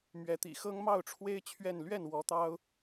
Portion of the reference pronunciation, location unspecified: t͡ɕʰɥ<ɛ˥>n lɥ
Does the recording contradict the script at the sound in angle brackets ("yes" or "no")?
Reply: yes